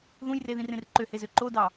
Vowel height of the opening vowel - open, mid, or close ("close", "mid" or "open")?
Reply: close